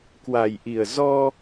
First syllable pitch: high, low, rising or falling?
low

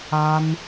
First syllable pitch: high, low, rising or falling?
high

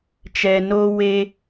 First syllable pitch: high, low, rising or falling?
low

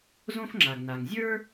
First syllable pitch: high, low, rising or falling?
high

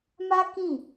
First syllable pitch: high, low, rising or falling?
high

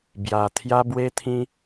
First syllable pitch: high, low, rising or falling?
low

